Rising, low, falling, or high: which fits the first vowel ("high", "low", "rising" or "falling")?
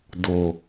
low